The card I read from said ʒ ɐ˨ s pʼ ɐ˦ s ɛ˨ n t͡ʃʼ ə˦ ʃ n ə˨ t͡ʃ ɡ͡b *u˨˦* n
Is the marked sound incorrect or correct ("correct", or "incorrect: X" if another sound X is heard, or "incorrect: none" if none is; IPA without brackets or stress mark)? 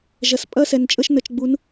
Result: correct